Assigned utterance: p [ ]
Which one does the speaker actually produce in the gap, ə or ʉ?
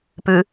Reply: ʉ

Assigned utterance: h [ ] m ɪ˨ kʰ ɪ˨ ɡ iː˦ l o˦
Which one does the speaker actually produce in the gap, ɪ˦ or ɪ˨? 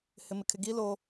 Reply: ɪ˨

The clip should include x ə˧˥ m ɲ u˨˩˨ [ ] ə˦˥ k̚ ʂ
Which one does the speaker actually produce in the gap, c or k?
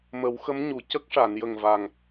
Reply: c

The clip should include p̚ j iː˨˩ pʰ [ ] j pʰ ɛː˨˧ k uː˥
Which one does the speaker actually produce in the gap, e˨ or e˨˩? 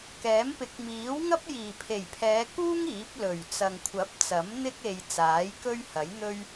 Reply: e˨˩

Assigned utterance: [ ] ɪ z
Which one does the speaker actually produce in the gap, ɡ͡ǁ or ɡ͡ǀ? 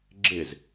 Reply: ɡ͡ǁ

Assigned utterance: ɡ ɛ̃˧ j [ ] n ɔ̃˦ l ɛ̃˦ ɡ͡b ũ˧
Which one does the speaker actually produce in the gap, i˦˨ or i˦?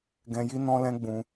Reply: i˦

